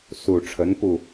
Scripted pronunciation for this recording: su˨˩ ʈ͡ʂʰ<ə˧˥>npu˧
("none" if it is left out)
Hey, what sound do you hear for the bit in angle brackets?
ə˧˥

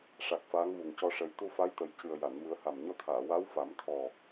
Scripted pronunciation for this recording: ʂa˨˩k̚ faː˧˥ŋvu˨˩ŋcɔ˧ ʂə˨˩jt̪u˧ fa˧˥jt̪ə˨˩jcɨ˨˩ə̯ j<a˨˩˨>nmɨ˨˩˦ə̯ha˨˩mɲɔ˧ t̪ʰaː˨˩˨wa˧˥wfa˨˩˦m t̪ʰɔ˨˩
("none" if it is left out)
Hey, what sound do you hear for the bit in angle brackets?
a˨˩˨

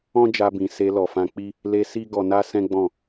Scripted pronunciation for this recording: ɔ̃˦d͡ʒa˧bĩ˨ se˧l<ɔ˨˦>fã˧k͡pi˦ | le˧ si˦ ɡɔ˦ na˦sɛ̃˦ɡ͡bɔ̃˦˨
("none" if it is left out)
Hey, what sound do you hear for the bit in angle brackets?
ɔ˨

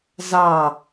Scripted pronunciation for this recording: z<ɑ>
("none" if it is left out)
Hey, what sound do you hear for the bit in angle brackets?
ɑ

